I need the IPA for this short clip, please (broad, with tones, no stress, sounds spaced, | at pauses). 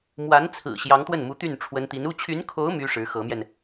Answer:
m w a˧˥ n t͡sʰ ɹ̩˨˩ ɕ j ɑ˧˥ ŋ t̪ w ə˥˩ n m u˧˥ t̪ y˥˩ n ʈ͡ʂʰ w ə˧˥ n t̪ i˧˥ n u˥˩ t͡ɕʰ y˧˥ n kʰ o˧˥ ʊ̯ m y˥ ʂ ɻ̩˧˥ x ɤ˧˥ m j ɛ˧ n